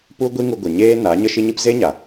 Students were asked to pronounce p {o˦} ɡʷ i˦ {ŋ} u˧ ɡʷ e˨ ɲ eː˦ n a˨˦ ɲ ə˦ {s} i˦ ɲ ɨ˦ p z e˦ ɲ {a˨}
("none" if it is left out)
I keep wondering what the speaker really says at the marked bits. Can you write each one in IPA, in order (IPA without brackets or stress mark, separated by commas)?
u˦, ŋ, ʃ, a˨